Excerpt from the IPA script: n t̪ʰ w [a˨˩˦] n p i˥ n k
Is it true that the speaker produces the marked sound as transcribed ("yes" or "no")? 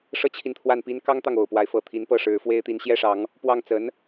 no